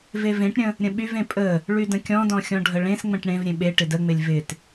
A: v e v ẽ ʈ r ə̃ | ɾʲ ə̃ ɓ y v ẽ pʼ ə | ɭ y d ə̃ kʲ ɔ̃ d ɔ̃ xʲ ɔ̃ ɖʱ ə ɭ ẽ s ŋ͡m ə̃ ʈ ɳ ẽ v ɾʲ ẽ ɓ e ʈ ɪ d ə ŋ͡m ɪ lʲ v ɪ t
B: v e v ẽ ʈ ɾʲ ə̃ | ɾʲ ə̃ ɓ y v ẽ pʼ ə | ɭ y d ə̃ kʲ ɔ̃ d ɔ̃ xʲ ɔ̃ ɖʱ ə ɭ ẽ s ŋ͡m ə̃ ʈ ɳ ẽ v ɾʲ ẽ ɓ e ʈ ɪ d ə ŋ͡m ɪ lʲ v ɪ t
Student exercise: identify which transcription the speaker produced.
B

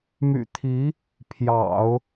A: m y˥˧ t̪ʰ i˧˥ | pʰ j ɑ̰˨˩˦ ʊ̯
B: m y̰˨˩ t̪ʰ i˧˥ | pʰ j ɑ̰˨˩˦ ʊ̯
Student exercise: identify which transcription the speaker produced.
B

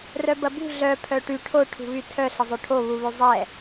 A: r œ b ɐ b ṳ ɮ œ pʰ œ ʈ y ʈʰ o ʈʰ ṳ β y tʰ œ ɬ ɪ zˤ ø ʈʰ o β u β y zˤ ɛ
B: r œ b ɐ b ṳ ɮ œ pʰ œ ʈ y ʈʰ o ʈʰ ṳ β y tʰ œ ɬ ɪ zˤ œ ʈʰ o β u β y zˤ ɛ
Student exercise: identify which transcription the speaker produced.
A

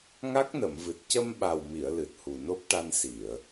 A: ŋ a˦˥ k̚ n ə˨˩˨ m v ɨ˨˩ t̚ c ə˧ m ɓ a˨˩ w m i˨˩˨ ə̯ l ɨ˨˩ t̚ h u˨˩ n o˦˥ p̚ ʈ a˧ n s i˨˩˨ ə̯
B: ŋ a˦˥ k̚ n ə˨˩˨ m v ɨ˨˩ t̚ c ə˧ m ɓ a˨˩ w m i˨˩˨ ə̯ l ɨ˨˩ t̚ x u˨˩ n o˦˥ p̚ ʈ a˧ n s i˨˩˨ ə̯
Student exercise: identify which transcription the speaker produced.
A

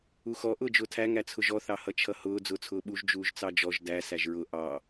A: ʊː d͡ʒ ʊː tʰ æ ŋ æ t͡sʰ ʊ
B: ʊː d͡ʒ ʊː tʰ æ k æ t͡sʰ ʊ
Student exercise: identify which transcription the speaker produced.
A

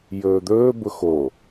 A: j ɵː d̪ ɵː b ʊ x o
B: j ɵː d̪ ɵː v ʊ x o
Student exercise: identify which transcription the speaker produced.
A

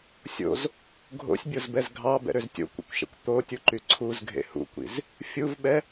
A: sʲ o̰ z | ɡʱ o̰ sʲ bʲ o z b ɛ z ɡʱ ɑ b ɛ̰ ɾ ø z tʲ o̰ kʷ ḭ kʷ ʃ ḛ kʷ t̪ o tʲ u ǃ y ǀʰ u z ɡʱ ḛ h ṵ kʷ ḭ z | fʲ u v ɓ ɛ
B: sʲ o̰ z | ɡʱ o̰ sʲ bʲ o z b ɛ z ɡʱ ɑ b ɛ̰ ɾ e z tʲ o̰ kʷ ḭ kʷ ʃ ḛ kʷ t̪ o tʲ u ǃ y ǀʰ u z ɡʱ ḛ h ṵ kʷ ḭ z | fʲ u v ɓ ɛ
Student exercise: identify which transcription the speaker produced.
A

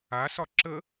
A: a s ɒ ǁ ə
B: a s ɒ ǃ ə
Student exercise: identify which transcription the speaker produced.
A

